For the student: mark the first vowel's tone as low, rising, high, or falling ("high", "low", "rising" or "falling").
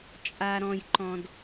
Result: low